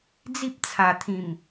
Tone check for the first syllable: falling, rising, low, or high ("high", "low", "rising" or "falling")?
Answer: high